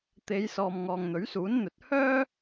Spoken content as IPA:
t̪ e˨˧ j s ɔː˨ m ŋ ɔː˨ ŋ n̪ ɵ˨˥ ɥ s uː˨˥ n n̪ ɵ˨˥ t̚ h œː˥

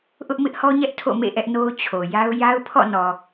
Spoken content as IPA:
ʔ ʊ˦ ʔ m ɪ˦ ʔ h ɔ˦ ɲ ɛ˦ ʔ tʰ o̰˦˨ m ḛ˦˨ ʔ ɛ˦ ʔ n o˦ ʊ̯ t͡ɕʰ o˨ j a˦ ʊ̯ j a˦ ʊ̯ pʰ ɔ̰˦˨ n ɔ˨

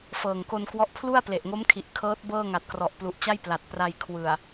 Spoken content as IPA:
f ɤː˨˩ ŋ k o˧ n k w ɔ˦˥ ʔ pʰ l u˥˩ a̯ p l e˨˩ ʔ ŋ o˦˥ m kʰ i˨˩ ʔ kʰ ɤː˦˥ t̚ b ɤː˥˩ ŋ a˨˩ t̚ k r ɔ˨˩ ʔ p l u˨˩ ʔ t͡ɕ a˥˩ j p l a˨˩ t̚ p r a˧ j kʰ w ɯ˨˩ a̯

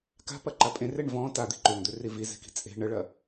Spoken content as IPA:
k a̤ p ɐ ǃ a pʼ ẽ r e ɳ v ɔ̃ t a d̪ i̤ ǃ ø ŋ d̪ ø r i v i z e̤ k i̤ t͡sʼ e̤ ɳ ə ɭ ɐ

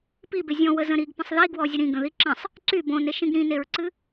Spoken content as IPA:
p i b e zʲ ɔ̃ w ə z ə̃ ɾ i ɡ p ə̃ sˤ ð i ɡ w ɔ zʲ ə ɾ ĩ ɡ ə̃ ð i ǁ ə̃ sˤ | ǀ y b õ n e ʃ ĩ ɡ ɾ ĩ n e ɹ ǀ ɨ

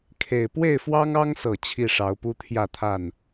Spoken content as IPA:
kʰ e˨˩ ɪ̯ p w e˥˨ ɪ̯ f w ɑ˦ ŋ ɑ˦ ŋ s ɤ˨˩ t͡ɕʰ i˥˨ ʂ ɑ˨˦ ʊ̯ p u˦ t̪ʰ j ä˥˨ t̪ʰ a˥˨ n

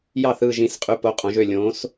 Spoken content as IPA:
j ɑ˦˨ θ ɯː˦˨ ʒ ĩ˨˦ s qʼ y˨˦ p o˨˦ qʼ õ˨˦ ʒ ø˦˨ lʲ õː˨˦ s

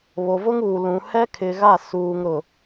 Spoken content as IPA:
β o˨ v ʊ˦ ŋ uː˨ l ũ˨ h ɛ˦ kʰ ɪ˨ ɣ a˦˨ s uː˨ ŋ ɾ ʊ˨

